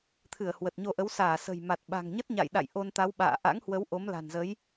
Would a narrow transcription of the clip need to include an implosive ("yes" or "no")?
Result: yes